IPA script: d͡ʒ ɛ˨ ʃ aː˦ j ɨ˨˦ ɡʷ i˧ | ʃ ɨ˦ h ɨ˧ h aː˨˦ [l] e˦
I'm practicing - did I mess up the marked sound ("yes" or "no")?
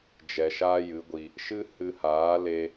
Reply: no